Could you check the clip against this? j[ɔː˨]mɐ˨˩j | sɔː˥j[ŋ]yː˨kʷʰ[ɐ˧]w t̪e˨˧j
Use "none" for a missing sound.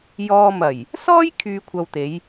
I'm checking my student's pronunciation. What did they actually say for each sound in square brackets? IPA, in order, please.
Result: ɔː˧, kʰ, ɐ˨

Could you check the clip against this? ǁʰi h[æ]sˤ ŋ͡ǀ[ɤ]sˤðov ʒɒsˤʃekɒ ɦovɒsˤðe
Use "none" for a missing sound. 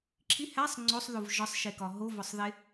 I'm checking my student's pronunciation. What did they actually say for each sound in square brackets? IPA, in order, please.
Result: æ, o

